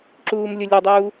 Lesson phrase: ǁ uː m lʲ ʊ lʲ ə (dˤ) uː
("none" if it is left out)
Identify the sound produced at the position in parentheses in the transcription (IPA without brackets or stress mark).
dˤ